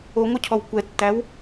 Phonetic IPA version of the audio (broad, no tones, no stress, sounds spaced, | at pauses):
o ŋʷ œ cʰ ɔ w kʷ ɛ tː æ w